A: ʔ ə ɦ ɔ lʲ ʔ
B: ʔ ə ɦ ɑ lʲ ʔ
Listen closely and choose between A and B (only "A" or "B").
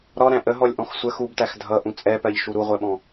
A